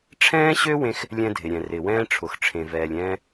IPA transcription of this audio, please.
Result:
ʈ͡ʂʰ ɛ̃ː˥ ɕ ø˥ w ẽ˥ x | lʲ ɛ̃˥ dʱ ɪ˩ ɾʲ ɛ̃˩ r ɪ˩ w ɛ̃ː˥ ʈ͡ʂʰ ʊ˩ x ʈ͡ʂʰ ẽ˩ v ɛː˩ lʲ ɛ̃ː˥

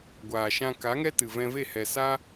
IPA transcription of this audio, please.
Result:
ɡʷ aː˨ ʃ ã˧ k a˨˦ ŋ ɛ˦ t ɨ˨ v ɛ̃˧ v e˦˨ h ɛ˨ s a˦

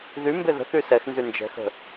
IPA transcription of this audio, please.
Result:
ð y m b e ð ə̤ θ y s ɛ x n z y n d͡ʒ ɛ̤ x ə̤

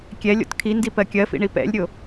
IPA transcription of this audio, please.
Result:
kʲ ɛ lʲ o̰ t kʰ i n d i p ɜ kʲ ɜ f ḭ ɳ i p ɛ̰ lʲ ɾʲ o

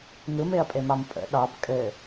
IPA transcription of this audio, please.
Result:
ŋ ɯ m e ɐ̯ pʼ e m ɑ m pʼ ə̰ ɗ ɑ b kʼ ɘ

